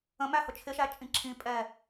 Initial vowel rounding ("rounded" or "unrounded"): unrounded